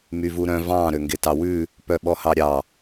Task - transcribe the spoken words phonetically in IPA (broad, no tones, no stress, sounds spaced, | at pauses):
m y v u ɾ œ̃ v ɑ̃ ɾ ø ŋ ɡ e t ɑ w ʉ | p œ ɓ ɔ h ɑ ɾʲ ɑ